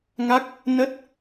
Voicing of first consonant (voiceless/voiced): voiced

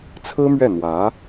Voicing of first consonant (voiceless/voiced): voiceless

